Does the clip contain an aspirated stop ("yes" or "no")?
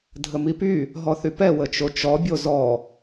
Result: no